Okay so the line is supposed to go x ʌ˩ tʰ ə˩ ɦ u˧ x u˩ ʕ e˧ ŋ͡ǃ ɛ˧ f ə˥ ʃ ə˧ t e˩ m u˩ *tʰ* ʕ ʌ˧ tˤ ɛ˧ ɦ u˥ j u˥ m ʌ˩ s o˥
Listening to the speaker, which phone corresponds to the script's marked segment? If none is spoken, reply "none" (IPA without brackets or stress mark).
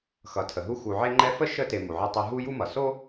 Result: none